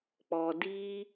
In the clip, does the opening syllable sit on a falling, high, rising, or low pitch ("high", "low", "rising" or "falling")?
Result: low